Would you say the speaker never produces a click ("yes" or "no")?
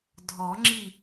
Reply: no